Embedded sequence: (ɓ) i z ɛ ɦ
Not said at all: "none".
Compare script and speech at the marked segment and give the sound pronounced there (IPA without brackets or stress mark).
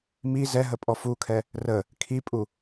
m